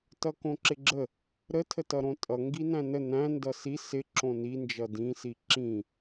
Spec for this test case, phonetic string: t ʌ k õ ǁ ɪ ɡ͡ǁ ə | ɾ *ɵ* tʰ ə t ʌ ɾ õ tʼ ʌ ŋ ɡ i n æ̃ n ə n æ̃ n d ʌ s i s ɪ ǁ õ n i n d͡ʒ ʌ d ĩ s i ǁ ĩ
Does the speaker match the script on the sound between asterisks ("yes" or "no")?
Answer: no